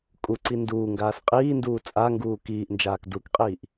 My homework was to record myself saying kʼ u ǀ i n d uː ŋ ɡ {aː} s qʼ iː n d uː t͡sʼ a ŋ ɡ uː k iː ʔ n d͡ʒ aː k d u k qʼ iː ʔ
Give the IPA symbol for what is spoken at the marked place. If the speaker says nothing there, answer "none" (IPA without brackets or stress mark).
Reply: aː